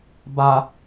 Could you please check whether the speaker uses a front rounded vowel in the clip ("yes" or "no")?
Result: no